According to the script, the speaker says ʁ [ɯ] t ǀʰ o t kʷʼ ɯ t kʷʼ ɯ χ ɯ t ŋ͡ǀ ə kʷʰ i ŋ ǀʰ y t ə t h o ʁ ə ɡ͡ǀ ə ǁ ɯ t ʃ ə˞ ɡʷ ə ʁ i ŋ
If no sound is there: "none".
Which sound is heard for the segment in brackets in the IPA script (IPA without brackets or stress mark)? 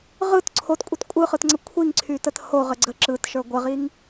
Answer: ɯ